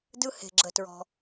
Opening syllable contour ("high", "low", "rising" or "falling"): high